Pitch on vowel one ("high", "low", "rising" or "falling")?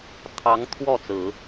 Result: rising